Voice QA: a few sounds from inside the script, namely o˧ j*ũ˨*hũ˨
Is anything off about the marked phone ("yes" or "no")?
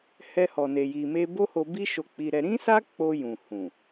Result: no